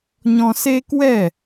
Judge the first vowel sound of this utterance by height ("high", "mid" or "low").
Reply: mid